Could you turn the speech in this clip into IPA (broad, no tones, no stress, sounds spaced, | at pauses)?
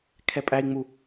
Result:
kʰ ɛ pʼ æ i̯ ŋ͡m u